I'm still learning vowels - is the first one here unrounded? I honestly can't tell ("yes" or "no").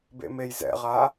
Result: yes